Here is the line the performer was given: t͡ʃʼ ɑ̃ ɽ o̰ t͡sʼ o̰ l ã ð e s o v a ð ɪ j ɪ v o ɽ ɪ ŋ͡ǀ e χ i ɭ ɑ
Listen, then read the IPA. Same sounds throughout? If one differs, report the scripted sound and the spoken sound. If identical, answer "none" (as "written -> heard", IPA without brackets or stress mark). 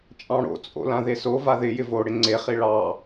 none